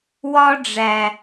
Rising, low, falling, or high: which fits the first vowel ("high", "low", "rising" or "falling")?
high